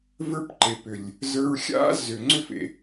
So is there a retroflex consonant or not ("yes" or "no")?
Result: no